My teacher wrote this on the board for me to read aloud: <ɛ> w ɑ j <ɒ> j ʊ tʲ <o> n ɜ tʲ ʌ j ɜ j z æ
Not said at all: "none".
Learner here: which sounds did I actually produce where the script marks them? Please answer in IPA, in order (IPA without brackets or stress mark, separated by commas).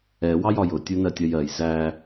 ɛ, ɒ, u